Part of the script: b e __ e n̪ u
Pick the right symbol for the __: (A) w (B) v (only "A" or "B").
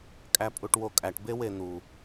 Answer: A